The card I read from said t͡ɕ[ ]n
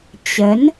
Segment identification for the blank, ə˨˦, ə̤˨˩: ə˨˦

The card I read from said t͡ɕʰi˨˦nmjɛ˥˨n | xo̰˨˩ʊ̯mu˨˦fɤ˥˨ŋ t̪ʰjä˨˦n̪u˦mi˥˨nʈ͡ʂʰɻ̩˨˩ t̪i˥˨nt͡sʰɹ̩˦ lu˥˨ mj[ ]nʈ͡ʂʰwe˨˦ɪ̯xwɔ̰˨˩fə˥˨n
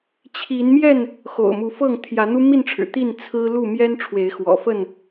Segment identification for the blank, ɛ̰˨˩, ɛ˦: ɛ˦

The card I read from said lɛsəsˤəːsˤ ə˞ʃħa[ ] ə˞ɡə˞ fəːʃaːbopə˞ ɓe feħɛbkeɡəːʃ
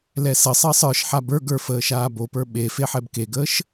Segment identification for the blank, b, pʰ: b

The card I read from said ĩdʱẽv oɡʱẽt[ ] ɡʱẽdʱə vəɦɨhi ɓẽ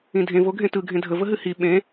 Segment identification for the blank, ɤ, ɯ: ɯ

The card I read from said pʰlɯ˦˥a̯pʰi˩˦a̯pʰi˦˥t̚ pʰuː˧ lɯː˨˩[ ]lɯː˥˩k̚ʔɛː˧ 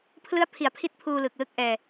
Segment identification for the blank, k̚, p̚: k̚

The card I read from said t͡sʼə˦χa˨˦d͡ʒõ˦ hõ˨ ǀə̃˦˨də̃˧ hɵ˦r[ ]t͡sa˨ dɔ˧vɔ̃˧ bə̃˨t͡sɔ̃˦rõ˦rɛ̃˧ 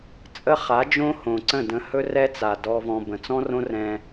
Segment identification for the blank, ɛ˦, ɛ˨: ɛ˦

